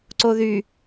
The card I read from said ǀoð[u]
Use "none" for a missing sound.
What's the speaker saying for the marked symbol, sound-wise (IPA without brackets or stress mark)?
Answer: y